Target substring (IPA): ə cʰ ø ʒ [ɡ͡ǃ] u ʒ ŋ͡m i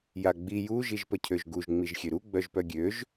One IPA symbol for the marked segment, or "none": ɡ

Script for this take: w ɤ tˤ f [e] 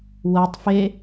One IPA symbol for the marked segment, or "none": e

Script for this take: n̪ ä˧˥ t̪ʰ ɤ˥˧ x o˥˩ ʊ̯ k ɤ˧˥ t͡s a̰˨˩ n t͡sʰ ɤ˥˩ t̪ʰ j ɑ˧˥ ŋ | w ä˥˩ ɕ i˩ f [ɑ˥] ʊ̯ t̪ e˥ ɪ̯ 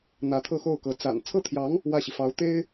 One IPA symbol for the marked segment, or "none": ɑ˧˥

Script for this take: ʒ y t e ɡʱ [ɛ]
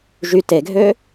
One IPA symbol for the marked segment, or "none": ø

